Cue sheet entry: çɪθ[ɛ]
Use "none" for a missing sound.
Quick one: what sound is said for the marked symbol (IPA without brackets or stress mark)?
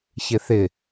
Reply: ɪ